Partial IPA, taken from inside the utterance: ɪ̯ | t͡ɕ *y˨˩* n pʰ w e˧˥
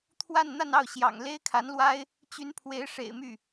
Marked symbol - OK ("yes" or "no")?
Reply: no